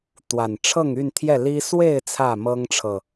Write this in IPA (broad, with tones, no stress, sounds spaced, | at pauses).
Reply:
t̪ w a˨˩ n ʈ͡ʂʰ ɤ˥˨ ŋ y˥˨ n t̪ʰ j ɛ˥˨ l i˦ s w e˥˨ ɪ̯ t͡sʰ ä˥˨ m ɤ˦ ŋ ʈ͡ʂʰ ɤ˨